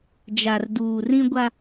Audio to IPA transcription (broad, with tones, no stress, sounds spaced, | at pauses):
d͡ʒ a˨ r d uː˨ r ĩ˦ ɡʷ a˦